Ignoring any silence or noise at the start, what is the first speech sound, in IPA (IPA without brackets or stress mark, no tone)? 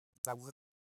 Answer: t̪